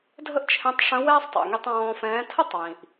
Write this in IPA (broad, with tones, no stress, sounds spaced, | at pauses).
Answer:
dʱ ə˥ ʔ t͡ʃʰ ɛ̃˧˥ tˤ ʂ ə̃˧˥ w ɛː˥ sˤ tˤ ɛ̰˩ ŋ i˧ tˤ ɔ̃ː˧ f ɛ̃ː˧˥ tʰ ə˥ tˤ w ĩ˩ ʔ